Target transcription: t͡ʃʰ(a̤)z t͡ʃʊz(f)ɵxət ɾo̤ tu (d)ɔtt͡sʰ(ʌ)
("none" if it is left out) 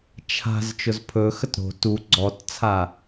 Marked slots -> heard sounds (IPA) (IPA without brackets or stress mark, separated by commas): a̤, pʰ, ɡ͡ǀ, a